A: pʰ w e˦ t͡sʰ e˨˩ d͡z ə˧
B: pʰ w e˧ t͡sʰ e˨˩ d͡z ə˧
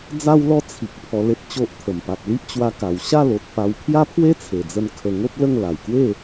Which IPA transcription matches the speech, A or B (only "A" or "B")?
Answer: A